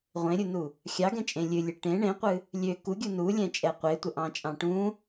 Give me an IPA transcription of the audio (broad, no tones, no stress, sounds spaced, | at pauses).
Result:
ʁʷ ẽ ɾʲ u n u | xʲ ɑ ɡ ɛ̃ t͡ʃʼ ẽ lʲ ɨ lʲ ɨ ʈ ẽ ɳ ẽ qʷ ɨ | lʲ ø k u ɡʲ u n u lʲ ɛ̃ t͡ʃʼ ɛ qʷ e tʷ ə ʔ ɑ̃ t͡ʃʼ ɑ̃ ʈ ũ